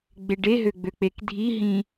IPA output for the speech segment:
ɡ͡b e ɖ e ɦ ø ɡ͡b ø k͡p e k dʱ i ɦ ĩ

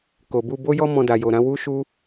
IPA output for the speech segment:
k o˨ b u˧ b o˦ j ɔ˦ m ɔ̃˧ d a˨ j o˨ ɾ ã˨˦ w u˦ ʃ u˦

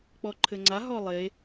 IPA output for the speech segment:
k͡p ɔ ǃʰ ɘ ŋ͡ǀ a ɦ ɔ lˠ e

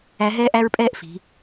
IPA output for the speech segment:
æ˧˥ ɦ ɛː˥ ʔ æ˥ ɹ pʼ ɛː˥ ʔ f i̤˩˧

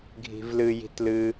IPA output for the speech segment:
ɡʱ i̤ v l ɨ j i̤ t l ɨ

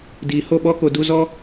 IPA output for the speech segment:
d iː˨ h o˦˨ ɓ ɔ˦ k o˧ d u˧ z ɔ˦

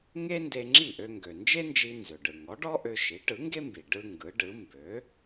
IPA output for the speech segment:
ŋ e˥ n d e˧ ŋ͡ǁ i˥˩ ʔ ø˧ ŋ ɡ ø˩ n d͡ʒ e˥ n d͡ʒ i˧ n z ø˩ ɖ ɯ˩ ŋ ɔ˩˥ ɖ ɔ˥ ʔ ø˧ ʃ i˩˥ ʈ ɯ˩˥ ŋ ɡ e˥ m b i˩ ɖ ɯ˧ ŋ ɡ ɯ˩˥ ɖ ɯ˩˥ m b ø˩˥

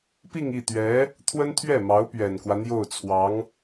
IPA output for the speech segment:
p i˥˧ ŋ i˥˩ t̪ ɥ ɛ˧˥ | t̪ʰ w ə˥ n t̪ʰ ɥ ɛ˥˩ m ɑ˧˥ ʊ̯ p ɥ ɛ˨˩ n k w ä˦ n̪ j o˥˩ ʊ̯ t͡sʰ w ɑ˧˥ ŋ

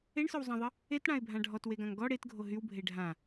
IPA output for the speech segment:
e ɳ s œ w zˤ ã ðˤ ə | e t ɽ ã ɪ̯ bʱ ã ɖʱ ɔ t w e ɡ ã ŋ ɡ ɔ ɽ e t ɡʱ o ɦ y w bʱ e ɖʱ ã

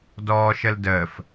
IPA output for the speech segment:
d ɔː ʃ ə l d əː f

